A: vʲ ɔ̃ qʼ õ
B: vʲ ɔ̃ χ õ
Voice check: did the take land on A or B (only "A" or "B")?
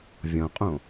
A